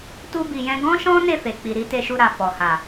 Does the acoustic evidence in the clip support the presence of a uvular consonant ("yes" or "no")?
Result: no